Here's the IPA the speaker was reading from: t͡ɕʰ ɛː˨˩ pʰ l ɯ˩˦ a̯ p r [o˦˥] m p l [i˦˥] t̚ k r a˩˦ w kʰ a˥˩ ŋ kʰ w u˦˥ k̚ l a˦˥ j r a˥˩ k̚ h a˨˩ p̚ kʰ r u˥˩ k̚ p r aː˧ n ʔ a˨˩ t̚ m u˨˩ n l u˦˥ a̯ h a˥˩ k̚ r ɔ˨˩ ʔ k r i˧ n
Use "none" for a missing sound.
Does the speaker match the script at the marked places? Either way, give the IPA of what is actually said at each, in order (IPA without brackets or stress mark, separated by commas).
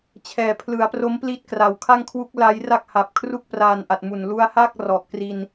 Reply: o˦˥, i˦˥